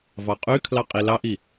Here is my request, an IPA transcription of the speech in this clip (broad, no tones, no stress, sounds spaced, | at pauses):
v ɑ qʼ y kʰ l ɑ qʼ i l ɑ ʔ i